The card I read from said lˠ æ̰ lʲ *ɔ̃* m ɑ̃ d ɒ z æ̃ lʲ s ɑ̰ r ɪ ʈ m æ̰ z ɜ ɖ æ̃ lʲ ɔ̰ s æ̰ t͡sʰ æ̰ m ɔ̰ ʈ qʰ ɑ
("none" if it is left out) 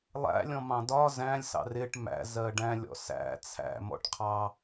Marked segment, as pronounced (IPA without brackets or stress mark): ɔ̃